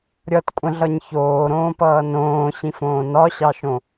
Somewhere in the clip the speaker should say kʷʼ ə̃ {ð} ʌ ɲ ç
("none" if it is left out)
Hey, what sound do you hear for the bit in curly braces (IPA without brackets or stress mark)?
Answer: ɮ